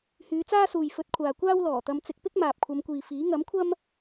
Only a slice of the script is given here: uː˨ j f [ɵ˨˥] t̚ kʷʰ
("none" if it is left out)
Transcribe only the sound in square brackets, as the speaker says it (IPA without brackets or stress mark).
ɵ˨˥